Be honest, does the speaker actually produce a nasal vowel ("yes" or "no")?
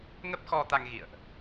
no